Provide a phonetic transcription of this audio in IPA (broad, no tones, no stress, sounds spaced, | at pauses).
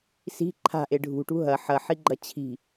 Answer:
s i̤ ǃʰ a̤ ʔ e ɖʱ ṳ ʈ ṳ ɦ ɐ ħ ɐ ħ i ɡ͡ǃ ɐ t͡ɕʰ i̤